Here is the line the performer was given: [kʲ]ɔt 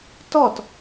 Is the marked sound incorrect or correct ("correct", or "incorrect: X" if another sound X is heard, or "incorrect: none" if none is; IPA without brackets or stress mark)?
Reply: incorrect: t